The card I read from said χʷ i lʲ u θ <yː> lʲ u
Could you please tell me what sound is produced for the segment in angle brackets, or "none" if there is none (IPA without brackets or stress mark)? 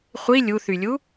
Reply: y